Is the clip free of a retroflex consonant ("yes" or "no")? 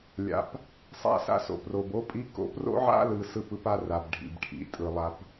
no